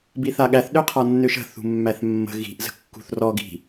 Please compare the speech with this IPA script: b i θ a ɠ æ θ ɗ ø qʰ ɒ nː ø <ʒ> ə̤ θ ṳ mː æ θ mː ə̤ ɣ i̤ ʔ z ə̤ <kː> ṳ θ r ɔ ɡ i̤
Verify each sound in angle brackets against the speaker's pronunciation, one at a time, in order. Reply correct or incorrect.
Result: incorrect, correct

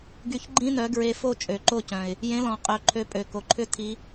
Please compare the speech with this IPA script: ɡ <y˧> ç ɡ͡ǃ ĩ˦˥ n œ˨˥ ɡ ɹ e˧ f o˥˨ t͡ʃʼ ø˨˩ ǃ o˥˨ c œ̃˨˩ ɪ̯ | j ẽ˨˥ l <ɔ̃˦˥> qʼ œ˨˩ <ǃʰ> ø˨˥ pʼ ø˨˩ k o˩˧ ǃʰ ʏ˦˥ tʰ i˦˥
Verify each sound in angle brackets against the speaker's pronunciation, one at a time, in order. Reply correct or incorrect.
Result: correct, incorrect, correct

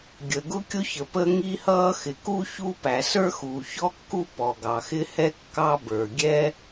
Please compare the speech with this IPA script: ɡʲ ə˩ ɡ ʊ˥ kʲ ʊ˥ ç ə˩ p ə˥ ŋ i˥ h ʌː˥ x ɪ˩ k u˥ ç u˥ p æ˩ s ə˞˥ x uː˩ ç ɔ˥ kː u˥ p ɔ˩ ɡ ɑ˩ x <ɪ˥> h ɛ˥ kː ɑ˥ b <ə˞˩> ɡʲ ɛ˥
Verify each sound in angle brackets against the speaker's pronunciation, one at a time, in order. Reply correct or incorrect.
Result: correct, correct

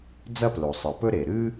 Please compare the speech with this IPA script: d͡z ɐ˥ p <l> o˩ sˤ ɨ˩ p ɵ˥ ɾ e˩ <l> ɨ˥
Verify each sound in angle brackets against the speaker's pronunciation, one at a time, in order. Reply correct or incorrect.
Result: correct, incorrect

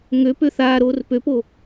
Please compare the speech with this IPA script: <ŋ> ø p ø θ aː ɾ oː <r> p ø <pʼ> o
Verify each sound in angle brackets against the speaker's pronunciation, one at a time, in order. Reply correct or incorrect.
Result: correct, correct, incorrect

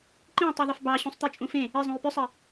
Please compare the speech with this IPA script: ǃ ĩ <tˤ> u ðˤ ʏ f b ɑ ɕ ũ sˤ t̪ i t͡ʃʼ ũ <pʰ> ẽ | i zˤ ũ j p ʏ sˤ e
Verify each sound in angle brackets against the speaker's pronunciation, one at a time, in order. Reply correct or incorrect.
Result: correct, incorrect

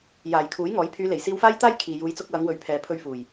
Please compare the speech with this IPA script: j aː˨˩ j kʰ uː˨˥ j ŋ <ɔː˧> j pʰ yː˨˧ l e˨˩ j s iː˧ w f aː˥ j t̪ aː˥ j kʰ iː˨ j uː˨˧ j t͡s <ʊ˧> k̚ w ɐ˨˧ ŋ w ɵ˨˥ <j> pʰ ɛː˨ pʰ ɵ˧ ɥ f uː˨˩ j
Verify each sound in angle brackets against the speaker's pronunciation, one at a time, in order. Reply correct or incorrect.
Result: incorrect, correct, incorrect

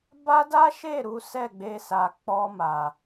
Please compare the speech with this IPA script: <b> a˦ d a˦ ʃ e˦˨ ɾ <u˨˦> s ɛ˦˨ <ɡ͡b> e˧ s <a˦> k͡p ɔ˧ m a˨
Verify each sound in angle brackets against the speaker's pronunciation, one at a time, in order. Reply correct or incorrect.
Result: correct, correct, correct, incorrect

